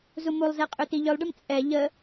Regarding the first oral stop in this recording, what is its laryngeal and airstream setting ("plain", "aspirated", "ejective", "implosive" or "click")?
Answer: ejective